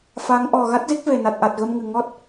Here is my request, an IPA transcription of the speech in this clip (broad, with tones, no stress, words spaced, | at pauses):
fa˨˦ŋ ʔɔ˨˩ ɣa˦˥t̚zi˦˥k̚ve˨˩ na˨˩t̚ʔa˨˩t̚ɣə˧mŋɨ˨˩ ŋɔ˦˥t̚